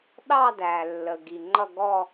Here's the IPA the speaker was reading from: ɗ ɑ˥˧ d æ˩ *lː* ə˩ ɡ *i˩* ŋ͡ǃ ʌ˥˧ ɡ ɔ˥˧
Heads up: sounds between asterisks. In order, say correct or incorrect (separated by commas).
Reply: correct, correct